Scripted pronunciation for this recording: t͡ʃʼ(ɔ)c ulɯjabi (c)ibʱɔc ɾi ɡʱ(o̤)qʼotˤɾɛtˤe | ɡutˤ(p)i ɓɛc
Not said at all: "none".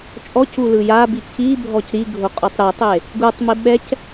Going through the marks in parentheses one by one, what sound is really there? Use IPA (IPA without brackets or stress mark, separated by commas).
ɔ, c, o, m